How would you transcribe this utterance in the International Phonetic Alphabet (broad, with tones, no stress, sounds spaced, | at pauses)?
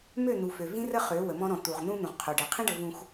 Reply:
m ø˦˨ n̪ u˨ f ø˨ v ĩ˦ r ə˦ χ ø˨˦ w ə˨ m ɔ̃˦ ɾ ɔ̃˨ t̪ u˨ ʁ n̪ ũ˦ n̪ ũ˨ ʁ qʰ o˨ ɖ ɛ˨ qʰ ĩ˦ ɖ ə˨ v ũ˨ x